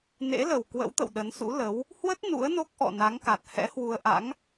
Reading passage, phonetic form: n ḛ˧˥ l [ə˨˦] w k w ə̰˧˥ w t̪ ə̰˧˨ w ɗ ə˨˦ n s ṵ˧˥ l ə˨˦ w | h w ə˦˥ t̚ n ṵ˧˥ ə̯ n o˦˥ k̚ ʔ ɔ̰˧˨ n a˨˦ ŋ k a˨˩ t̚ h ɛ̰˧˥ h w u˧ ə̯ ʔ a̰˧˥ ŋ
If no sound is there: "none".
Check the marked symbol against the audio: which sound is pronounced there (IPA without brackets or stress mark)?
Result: ə˨˩